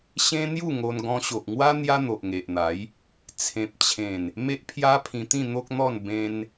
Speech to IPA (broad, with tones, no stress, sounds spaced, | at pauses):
ɕ ẽ˦ n̪ j u˥˧ ŋ o˧ n ɡ ɔ̃˧ ɕ o˨ ʔ ŋ w a˦ n̪ j a˦ n̪ o˨ ʔ ŋ e˨ ʔ n̪ a˨˦ j | t͡sʰ ẽ˨ p̚ t͡ɕʰ ẽ˨˩ n | m e˦ ʔ pʰ j a˦ pʰ ĩ˧ t̪ ĩ˥˧ n̪ o˦ k̚ n̪ ɔ˥˧ n b ẽ˧ n